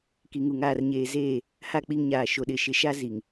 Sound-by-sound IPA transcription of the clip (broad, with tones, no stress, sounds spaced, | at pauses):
k i˨ ŋ u˨ ŋ aː˨ r ɲ eː˨ z eː˦˨ | h a˦˨ k͡p i˦ ŋ ɲ aː˨ ʃ o˨ ɗ ɪ˨ ʃ ɪ˨ ʃ a˦ z i˨ ŋ